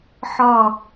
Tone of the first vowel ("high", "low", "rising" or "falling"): falling